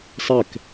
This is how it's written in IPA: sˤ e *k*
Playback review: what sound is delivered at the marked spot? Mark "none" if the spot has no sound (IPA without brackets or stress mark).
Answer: k